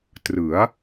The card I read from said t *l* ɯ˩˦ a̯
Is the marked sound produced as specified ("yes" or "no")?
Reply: no